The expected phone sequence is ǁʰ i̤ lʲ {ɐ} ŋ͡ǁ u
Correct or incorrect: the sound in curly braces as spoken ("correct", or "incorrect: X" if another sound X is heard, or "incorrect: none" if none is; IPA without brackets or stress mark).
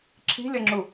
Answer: correct